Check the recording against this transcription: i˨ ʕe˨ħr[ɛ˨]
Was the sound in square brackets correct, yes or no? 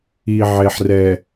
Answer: yes